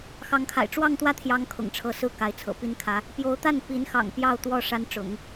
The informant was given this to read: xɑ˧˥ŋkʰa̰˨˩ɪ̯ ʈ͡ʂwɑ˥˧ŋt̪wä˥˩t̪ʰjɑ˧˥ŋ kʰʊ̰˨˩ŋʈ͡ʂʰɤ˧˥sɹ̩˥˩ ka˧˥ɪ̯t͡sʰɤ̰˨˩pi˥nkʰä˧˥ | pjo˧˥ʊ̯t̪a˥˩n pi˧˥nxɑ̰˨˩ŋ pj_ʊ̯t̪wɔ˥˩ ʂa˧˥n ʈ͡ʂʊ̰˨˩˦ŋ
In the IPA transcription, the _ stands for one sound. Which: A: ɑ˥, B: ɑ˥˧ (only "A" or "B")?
B